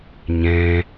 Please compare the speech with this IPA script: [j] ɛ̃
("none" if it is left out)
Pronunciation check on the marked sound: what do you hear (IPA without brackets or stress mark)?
ɲ